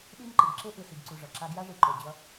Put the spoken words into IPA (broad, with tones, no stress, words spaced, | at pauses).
ɗi˦nǃɯ˨ɡ ǁe˦ʔɯ˨si˨ɡǀu˨ ʐʌ˨ǁa˦ ɡja˦ʐi˨ ǃo˨d͡ʑʌ˦